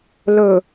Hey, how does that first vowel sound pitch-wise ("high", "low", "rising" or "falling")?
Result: low